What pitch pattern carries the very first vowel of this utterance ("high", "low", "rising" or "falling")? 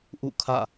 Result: falling